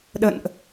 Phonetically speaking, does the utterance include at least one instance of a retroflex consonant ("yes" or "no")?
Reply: no